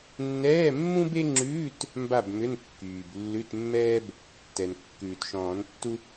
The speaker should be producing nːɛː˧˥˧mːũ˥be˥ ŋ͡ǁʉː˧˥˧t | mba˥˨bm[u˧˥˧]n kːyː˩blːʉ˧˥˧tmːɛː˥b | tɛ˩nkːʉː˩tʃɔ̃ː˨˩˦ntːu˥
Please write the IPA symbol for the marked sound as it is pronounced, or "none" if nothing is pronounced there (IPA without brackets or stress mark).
ʏ˧˥˧